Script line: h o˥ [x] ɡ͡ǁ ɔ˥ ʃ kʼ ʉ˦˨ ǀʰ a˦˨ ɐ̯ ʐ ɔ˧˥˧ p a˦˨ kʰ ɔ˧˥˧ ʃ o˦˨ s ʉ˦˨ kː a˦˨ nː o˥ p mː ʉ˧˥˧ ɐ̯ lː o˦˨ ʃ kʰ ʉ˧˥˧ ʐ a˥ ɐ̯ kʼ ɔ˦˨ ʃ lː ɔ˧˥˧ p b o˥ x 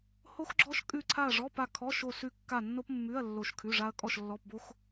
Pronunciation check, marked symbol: correct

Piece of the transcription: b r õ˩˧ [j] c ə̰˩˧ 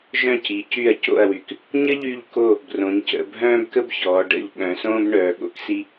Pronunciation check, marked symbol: incorrect: ɲ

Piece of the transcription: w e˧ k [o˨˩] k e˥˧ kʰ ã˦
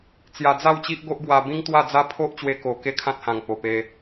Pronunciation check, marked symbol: correct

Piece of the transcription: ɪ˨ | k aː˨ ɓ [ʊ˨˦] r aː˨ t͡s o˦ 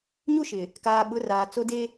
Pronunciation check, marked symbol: correct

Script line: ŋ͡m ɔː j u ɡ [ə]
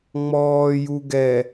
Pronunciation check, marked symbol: incorrect: ɛ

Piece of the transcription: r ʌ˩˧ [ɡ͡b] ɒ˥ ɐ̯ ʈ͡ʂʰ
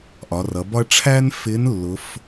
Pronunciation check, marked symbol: incorrect: b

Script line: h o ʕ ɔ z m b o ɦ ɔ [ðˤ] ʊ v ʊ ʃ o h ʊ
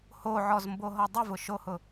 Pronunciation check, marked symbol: incorrect: dˤ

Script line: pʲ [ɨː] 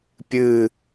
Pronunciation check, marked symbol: correct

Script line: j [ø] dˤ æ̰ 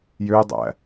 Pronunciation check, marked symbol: correct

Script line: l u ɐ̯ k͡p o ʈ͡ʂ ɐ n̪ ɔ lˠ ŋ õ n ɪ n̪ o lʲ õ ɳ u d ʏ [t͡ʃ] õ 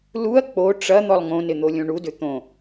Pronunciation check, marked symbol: incorrect: t̪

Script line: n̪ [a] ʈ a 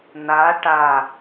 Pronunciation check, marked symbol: correct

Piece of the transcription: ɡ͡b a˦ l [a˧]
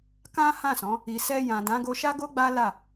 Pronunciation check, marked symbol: incorrect: a˦˨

